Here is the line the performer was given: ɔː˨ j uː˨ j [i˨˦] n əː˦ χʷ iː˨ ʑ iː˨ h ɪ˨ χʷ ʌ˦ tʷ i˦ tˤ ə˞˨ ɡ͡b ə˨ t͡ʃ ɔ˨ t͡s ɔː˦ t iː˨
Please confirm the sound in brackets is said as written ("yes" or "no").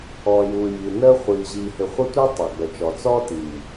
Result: no